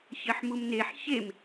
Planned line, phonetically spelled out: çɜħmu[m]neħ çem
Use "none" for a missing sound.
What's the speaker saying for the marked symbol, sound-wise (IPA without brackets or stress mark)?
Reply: m